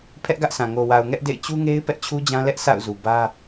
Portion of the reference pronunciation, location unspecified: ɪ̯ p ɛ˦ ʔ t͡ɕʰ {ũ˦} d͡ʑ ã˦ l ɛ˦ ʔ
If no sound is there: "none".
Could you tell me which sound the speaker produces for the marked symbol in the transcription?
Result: u˦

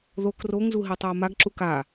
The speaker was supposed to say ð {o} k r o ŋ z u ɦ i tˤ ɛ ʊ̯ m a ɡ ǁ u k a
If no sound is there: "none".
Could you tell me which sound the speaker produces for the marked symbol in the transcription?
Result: o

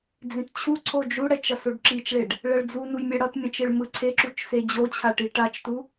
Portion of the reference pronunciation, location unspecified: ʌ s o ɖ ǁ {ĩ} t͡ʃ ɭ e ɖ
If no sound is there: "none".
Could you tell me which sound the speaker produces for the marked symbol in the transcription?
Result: i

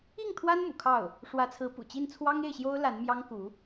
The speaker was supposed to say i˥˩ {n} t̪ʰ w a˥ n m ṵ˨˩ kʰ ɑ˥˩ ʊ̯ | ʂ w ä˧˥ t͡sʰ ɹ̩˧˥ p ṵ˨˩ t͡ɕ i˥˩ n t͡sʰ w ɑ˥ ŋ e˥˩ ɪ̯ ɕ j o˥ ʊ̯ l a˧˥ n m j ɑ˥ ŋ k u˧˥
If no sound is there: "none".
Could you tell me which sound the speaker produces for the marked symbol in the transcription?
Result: ŋ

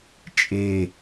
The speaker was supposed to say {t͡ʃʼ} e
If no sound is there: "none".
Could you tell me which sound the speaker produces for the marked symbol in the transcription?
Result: t͡ʃʼ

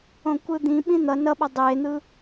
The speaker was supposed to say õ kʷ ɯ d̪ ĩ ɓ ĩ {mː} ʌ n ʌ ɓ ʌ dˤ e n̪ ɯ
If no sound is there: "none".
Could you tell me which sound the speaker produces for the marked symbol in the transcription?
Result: n̪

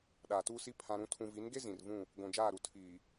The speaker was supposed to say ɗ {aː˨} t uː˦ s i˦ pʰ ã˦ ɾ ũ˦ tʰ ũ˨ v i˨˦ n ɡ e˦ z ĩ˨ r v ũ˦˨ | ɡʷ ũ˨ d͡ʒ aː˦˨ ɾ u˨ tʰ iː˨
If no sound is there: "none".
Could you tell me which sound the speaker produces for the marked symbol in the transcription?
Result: aː˨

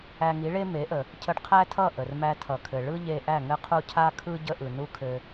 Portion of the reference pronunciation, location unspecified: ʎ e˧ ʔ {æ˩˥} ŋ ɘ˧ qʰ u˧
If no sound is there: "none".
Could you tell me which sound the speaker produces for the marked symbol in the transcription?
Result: æ˥˩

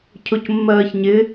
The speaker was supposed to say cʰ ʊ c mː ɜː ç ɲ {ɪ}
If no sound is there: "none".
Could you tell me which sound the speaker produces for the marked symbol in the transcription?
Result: ɪ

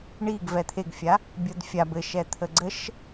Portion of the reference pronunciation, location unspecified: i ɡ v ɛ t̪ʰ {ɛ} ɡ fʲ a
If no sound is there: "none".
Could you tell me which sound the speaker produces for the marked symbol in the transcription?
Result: e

